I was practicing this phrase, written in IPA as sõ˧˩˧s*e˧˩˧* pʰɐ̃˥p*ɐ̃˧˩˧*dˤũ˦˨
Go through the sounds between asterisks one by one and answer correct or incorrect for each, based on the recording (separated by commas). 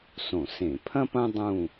incorrect, incorrect